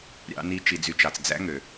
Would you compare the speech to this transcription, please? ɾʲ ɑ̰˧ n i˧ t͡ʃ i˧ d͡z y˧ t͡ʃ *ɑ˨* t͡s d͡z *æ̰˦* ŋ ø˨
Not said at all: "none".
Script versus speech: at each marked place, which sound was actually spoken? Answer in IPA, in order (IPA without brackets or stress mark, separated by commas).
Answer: ɑ˨, æ̰˦